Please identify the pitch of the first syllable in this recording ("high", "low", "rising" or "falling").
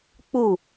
falling